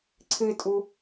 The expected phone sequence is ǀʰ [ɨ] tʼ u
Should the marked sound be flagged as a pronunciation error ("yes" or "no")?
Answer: no